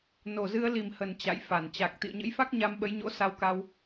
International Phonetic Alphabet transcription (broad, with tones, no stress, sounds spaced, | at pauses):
n o˨˩ z ɨ˧ ə̯ l i˨˩ m h ə˨˩ n t͡ɕ a̰˧˨ j f a˧˩ n t͡ɕ a˨˩ k̚ t̪ ḭ˧˨ ə̯ ɲ ə̰˧˥ j f a˦˥ k̚ ɲ a˧ m ɓ ə˨˦ j ɲ o̰˧˥ s a˧ w k a˧ w